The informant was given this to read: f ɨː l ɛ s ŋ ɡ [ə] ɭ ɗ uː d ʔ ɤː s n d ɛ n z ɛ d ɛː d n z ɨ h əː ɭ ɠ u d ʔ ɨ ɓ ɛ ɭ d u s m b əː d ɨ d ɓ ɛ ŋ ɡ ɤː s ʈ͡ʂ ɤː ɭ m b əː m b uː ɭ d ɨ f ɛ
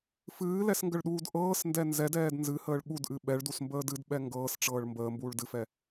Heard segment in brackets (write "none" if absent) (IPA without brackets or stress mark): ə